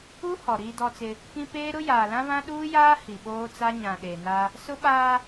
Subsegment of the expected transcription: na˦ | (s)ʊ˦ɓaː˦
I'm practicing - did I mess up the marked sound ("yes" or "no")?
no